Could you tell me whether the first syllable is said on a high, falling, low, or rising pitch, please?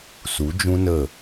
rising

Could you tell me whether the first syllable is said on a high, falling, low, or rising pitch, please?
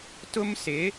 high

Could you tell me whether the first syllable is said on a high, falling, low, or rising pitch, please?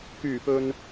low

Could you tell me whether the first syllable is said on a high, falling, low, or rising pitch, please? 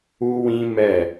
high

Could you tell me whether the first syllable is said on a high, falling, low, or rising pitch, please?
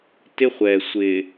high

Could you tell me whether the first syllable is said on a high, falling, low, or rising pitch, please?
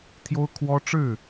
high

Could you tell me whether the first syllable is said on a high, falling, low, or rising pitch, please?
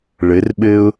rising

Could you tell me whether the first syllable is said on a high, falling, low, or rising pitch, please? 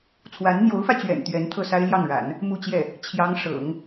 rising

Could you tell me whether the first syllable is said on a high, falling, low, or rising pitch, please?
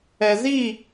low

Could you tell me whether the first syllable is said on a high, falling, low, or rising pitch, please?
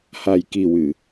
low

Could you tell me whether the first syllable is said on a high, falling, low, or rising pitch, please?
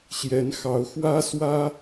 rising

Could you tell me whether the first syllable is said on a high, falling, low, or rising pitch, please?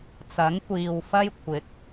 rising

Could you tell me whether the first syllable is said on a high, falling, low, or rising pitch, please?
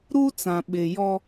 high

